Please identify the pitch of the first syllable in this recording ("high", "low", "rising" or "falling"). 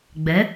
rising